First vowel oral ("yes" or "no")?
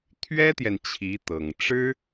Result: yes